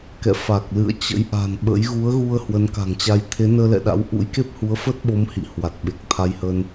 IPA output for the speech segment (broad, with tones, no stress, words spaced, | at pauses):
kɛ̰˧˨fa˨˩k̚lɨ̰˧˨ə̯ t͡ɕə̰˧˥jʔa̤˨˩nɓə̰˧˥j ɣu˨˦ə̯ɣu˧ə̯ hwə˨˦nka̤˨˩ŋt͡ɕa˧j t̪ʰe˨˦nəː˧lɛ̰˧˨ɗa̰˧˥w ʔṵ˧˥jke˦˥p̚hu˨˦ə̯ fə˦˥t̚ɓo˨˦m hḭ˧˨hwa˨˩t̚ɓe˨˩k̚ t̪ʰa˧jhə˧n